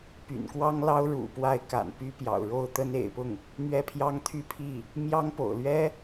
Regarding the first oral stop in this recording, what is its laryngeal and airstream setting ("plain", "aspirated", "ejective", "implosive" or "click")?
plain